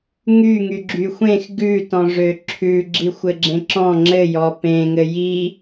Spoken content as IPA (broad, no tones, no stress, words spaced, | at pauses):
ŋyŋy ɡ͡ǁyxʷẽx ɡʉ tɔ̃ʐøǁʰʉ ɡ͡ǁixʷɘɡ͡ǁẽǁɔ̃ ŋ͡ǁɘjɔ pẽŋɘ ji